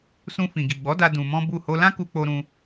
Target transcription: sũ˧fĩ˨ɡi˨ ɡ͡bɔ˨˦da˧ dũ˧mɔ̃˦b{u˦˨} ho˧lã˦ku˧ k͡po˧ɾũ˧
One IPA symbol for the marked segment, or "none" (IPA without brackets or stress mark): u˦˨